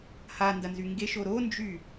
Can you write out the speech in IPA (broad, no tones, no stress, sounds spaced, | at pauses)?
h a n d ɐ n z y ŋ ɡ e ʃ o ɾ o n d͡ʒ y